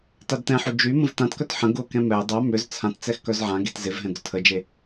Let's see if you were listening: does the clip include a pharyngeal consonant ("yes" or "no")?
yes